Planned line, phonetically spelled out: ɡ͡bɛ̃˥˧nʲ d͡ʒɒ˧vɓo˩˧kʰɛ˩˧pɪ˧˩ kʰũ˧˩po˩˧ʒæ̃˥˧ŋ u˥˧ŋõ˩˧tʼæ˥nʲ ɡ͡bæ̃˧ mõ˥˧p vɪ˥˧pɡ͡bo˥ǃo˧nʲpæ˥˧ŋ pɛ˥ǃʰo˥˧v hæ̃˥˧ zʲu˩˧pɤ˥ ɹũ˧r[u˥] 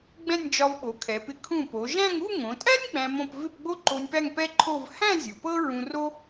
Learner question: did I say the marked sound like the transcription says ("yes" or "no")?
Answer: no